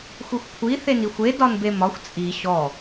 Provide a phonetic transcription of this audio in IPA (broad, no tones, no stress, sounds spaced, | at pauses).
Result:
xʷ i xʷ kʷʰ i θ e n i xʷ e d ɒ n b e m ɒ xʷ t͡sʼ i ɕ ɔ